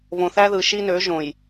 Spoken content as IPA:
βõ˨θæ˦ðɯ˨ ʃi˦nø˨˦ʒõ˨j

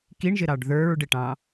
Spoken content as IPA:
kiɳʒɪɾɑɖ ðə˞ɹɖɪʈɑ̃

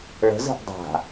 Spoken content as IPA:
ɭə̤zə̤ʔ dˤa̤

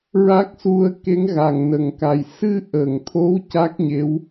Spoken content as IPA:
ɹa˦˥k̚su˧ə̯ ke˧˥ŋɣa˨˩ŋnə˨˩˨ŋka˨˩j sɨ˧ʔə˨˩˨ŋt̪ʰo˧˥w ca˦˥k̚ɲe˧˥w

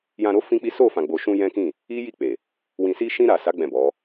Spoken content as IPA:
jã˧ɾo˦ fĩ˦k͡pi˦ so˦˨fã˨ɡ͡bo˨ʃũ˧ jɛ̃˦kĩ˦˨ | i˦ji˦˨k͡pe˨ | wĩ˨si˧ʃĩ˧ ɾa˨sa˨˦ ɡ͡bɛ̃˦˨bɔ˨˦

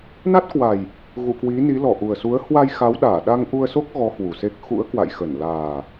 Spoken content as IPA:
na˦˥t̚kwa˨˩j | ɣṵ˧˨kwi˨˦ni˨˦ lɔ˧˩ʔu˨˩ə̯su˨˦ə̯ hwa˧jxa˨˦wɗaː˧˩ɗa˧ŋ ʔu˧ə̯so˦˥k̚ ɣɔ˨˦ hwu˨˩se˦˥k̚ xṵ˧˥ə̯kwa̰˧˨jxə˧˩n laː˨˩

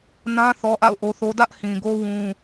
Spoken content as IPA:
nã˦ θɔ˦ʔa̰˦˨ʊ̯ʔo˦θo˦ dä˦ʔhĩ˨ ɡo˦ wũ˦

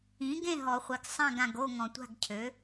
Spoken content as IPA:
ĩ˩˥ɡẽ˥˨ɦɔ˨χʷi˨ɡ sˤã˥˨ɡã˨ɡ o˥˨ŋɔ̃˨tʷa̤˥˨ɡcʰø˩˥

